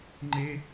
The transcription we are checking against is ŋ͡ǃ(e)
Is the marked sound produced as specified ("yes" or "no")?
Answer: yes